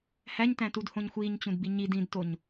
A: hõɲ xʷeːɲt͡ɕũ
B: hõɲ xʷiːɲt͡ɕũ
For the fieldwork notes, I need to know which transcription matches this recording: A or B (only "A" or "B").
B